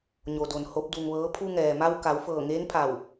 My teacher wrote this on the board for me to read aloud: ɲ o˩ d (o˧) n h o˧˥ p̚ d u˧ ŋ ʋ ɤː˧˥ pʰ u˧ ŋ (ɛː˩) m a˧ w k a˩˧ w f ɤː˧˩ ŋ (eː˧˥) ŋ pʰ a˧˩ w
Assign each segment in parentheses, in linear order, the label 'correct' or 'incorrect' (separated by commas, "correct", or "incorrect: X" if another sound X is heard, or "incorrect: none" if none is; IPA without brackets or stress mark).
incorrect: o˩, correct, correct